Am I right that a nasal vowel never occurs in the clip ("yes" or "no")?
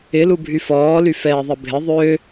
yes